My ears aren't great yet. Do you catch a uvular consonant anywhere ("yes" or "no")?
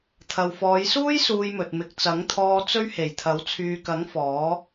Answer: no